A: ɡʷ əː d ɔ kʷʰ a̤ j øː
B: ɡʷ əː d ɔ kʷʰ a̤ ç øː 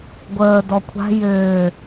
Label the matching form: A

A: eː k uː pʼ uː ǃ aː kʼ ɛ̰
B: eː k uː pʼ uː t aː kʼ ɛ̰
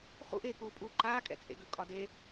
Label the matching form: A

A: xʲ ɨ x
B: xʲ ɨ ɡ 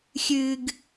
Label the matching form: B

